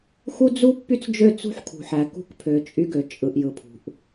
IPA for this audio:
x u˦ d͡z u˦ pː y˦ t͡s d͡ʒ ø˦˨ t͡s ṳ˦ ħ kʰ ṳ˨ ħ æ˨ k ṳ˦ k pʰ ø˨ t͡ʃʼ y˦ ɡ ø˨ t͡ʃʼ ɯ˨ ʔ j ɯ˨ pʰ ṳ˨ ʔ

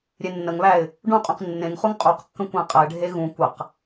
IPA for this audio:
ɾʲ e nː ə ŋ β æ ɪ̯ | ɖ ũ qʼ ũ q nː ẽ ŋ χ u ŋ qʼ u q kː ə̃ kʷ æ̃ qʼ ə ɪ̯ ɖʱ e ɣ ũ kʷ ə q

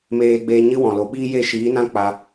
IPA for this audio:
m eː˧ ɡ͡b eː˧ ɲ ɨ˦ w ɔ̃˨ l o˨ ɓ iː˦ j e˦˨ ʃ iː˨˦ n ã˦ k͡p a˧

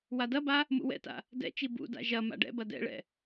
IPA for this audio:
w a d ɐ b a | m ṵ w ɛ̰ t a̰ | d ɛ̰ t͡ʃ i b ṵ d a̰ ʒ ɐ m a̰ ɖ ɛ̰ b ɐ d ɛ̰ ɭ ɛ̰

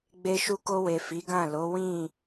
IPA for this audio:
ɡ͡b e˧ ʃ u˧ k o˧ w e˨ f i˨˦ ɡ ã˦˨ l o˨˦ w ĩ˦˨

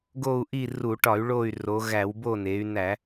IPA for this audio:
ɡ o˦˨ u̯ ʔ i˦˨ r u˧˩˧ ʈ ɒ˧˩˧ y̯ ɭ o˦˨ y̯ r o˩˧ ɣ æ˧˩˧ w b o˦˨ n e˩˧ y̯ n æ˧˩˧

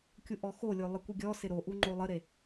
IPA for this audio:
kʲ u ʔ ɔ x o lʲ o lˠ ɪ kʷ ɪ ɡʲ ɔ s ɪ ɾ o ʔ u ŋ͡ǃ o lˠ ə ɾ e

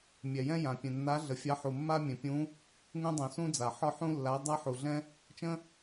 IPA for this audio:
mʲ ɛ˩ j ɛ̃˦ j ã˩ pʲ ɛ̃˩ nː a˨˦ ɮ ə˩ fʲ a˨˦ ħ u˩ mː a˦ mʲ ɛ̃˩ pʲ ũ˨˦ | ŋ ũ˦ dˤ ũ˩ s ũ˦ d͡z a˩ ħ ɒ˦ ħ ũ˦ lː a˨˦ dˤ a˦ ħ u˩ ɮ ɛ̃˦ | t͡ʃ ə̃˦

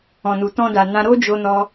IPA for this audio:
ɔ̃˨ n u˨ t ɔ̃˧ d a˨ n ã˧ ɾ o˦ d͡ʒ o˦ n ɔ˦

